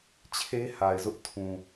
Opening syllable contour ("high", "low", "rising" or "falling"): high